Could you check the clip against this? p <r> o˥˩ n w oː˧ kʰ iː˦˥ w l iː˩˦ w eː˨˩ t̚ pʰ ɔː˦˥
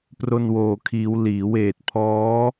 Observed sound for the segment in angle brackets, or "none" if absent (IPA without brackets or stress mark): r